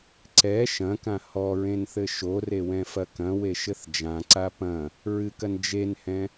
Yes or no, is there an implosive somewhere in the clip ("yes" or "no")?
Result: no